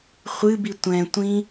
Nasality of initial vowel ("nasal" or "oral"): oral